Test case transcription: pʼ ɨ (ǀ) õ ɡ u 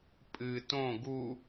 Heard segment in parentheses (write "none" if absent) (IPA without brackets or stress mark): t